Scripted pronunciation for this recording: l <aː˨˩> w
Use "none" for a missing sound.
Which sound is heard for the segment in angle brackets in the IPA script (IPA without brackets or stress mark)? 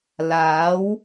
aː˨˥